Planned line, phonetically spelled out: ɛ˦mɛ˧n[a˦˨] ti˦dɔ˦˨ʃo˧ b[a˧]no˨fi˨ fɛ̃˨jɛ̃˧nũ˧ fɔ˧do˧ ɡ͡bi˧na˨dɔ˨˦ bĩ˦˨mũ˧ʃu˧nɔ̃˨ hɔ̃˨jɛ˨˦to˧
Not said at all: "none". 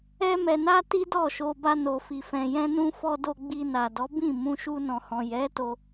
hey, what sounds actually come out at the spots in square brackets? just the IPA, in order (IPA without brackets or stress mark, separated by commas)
a˦, a˧